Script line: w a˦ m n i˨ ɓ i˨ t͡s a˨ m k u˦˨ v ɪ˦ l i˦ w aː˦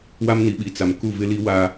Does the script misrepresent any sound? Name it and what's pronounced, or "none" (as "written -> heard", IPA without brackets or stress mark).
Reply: none